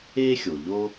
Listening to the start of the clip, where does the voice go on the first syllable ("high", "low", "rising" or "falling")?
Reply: high